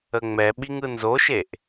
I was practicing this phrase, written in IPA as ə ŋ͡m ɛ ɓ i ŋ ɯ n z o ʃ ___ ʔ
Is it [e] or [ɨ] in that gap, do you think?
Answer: e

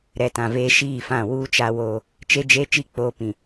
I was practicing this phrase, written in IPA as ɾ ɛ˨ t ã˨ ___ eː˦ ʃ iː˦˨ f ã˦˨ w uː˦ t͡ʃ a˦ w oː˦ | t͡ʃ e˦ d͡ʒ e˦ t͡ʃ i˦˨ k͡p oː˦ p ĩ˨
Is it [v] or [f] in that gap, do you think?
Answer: v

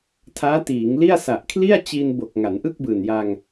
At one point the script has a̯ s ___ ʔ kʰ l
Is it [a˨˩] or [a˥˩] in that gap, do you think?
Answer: a˨˩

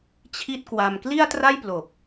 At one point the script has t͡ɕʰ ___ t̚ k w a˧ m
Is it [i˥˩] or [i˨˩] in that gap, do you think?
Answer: i˥˩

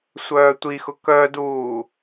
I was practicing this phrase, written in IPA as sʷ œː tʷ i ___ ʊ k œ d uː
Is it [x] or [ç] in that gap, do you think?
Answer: x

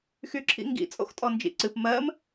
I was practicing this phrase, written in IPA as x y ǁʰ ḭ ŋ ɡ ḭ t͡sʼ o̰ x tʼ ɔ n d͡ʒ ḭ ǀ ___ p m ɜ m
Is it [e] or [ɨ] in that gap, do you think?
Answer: ɨ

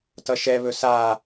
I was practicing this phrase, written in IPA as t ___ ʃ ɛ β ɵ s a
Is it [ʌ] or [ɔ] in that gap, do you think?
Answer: ʌ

